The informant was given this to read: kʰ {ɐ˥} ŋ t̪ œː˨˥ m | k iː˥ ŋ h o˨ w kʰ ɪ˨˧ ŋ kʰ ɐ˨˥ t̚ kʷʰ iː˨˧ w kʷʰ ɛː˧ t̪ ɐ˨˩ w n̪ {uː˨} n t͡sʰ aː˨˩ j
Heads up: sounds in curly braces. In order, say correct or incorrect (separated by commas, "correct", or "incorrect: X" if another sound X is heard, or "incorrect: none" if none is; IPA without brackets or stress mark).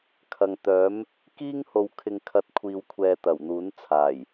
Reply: incorrect: ɐ˨, incorrect: uː˨˥